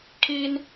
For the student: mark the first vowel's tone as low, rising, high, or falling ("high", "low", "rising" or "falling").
high